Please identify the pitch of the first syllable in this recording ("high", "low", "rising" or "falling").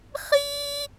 high